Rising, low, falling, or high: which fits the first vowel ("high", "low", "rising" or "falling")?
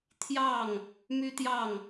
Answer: falling